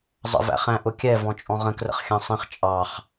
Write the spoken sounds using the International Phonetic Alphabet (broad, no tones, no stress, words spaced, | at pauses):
zˤə̰ væ̰χæ̃ ʔʊkʲɛ vɔ̃t͡ʃʼɔ̃ʁə̃ krə̰χxʲɑ̃sˤĩχ t͡ʃʼɑχ